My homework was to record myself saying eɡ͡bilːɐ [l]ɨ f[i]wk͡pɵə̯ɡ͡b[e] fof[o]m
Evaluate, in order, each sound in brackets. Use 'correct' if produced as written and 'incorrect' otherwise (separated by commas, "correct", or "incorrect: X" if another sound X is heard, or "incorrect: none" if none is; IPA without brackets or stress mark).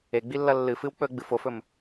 incorrect: lː, incorrect: ɨ, incorrect: ɨ, incorrect: ɵ